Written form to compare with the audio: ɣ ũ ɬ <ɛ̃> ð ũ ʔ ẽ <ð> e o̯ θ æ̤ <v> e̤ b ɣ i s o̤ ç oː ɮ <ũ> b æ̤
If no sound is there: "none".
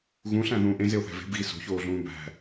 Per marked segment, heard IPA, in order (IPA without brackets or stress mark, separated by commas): æ̃, z, v, ũː